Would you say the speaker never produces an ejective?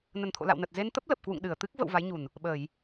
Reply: yes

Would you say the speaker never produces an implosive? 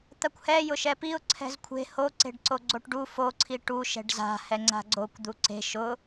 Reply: yes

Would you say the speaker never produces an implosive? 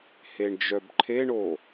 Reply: yes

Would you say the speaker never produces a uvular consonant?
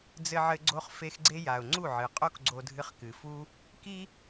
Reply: no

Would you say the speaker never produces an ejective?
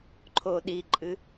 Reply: no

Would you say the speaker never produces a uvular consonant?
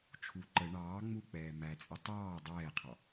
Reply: no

